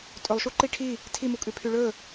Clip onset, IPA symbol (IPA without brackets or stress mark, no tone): tʼ